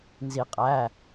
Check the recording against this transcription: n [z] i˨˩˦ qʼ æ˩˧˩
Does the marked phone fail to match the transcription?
no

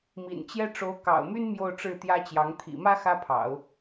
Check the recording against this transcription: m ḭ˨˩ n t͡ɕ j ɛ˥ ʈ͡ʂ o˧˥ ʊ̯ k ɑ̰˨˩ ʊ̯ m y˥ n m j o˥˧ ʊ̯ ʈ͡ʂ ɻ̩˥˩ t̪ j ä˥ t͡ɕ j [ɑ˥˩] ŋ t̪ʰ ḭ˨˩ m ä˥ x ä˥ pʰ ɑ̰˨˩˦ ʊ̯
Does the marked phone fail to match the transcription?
yes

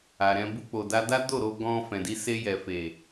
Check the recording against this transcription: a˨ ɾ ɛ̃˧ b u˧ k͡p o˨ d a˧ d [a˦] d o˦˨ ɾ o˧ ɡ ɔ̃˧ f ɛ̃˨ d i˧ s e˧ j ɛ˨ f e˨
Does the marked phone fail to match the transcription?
no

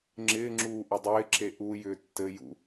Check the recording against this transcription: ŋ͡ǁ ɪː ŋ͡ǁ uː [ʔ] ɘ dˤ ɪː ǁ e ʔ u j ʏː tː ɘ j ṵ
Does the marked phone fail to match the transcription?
no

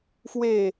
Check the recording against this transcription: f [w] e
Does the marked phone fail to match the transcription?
no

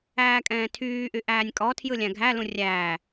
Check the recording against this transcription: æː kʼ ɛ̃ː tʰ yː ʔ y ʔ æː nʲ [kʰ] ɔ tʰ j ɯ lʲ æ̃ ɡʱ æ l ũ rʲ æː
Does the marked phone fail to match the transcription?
yes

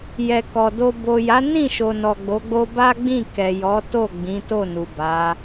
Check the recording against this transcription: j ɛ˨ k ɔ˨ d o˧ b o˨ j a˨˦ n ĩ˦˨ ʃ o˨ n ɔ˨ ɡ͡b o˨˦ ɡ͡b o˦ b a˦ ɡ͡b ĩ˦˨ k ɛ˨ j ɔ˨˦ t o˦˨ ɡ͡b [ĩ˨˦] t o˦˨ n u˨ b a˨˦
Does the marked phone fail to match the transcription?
no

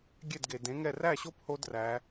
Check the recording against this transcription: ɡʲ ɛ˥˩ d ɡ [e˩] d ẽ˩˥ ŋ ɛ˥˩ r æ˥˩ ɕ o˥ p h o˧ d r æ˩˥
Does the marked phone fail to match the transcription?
no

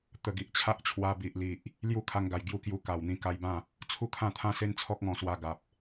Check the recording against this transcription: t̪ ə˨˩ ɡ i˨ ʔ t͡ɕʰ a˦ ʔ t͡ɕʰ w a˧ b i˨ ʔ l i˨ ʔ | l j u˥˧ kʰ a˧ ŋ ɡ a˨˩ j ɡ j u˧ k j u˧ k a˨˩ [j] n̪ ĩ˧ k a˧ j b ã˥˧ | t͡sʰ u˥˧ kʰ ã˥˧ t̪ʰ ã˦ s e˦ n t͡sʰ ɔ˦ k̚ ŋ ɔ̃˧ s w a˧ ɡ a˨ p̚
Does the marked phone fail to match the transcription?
yes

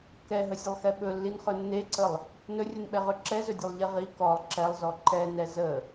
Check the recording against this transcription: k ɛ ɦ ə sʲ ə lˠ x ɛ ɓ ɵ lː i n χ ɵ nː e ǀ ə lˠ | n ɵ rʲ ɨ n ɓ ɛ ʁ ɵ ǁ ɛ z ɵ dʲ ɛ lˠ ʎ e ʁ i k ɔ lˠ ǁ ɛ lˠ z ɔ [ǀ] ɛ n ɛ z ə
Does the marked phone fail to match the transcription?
yes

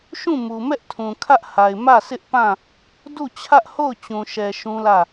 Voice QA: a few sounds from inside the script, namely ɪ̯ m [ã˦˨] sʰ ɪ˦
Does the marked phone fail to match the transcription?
yes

